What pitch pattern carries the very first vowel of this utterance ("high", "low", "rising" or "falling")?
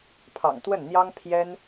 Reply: low